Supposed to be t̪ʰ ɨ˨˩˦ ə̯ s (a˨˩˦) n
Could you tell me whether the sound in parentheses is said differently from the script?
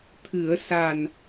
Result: yes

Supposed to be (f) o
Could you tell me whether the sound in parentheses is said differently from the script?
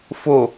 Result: no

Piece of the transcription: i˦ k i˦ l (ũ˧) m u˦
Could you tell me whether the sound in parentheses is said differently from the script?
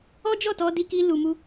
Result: yes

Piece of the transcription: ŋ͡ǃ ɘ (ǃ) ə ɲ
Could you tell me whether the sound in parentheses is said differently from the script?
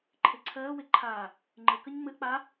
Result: yes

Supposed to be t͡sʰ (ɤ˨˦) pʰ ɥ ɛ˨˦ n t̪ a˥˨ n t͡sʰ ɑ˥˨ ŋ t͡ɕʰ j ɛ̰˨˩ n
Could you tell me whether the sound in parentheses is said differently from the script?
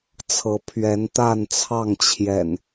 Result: no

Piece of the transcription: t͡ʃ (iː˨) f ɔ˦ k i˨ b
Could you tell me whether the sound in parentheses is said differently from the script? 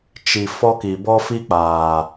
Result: yes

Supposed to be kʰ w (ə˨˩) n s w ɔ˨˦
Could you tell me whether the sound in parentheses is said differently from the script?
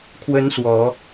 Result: yes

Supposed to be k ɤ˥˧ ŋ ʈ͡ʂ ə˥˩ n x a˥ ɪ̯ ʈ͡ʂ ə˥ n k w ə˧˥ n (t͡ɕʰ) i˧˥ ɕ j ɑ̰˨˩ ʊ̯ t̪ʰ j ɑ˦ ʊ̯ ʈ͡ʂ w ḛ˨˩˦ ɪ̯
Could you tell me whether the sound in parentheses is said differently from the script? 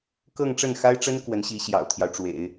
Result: yes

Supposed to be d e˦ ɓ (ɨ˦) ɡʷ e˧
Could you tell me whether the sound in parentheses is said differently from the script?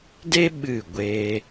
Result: yes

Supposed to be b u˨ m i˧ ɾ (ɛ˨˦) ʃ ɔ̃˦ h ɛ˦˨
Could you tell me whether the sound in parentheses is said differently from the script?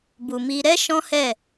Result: yes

